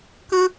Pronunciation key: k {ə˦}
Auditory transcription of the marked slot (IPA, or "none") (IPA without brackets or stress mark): ə̃˦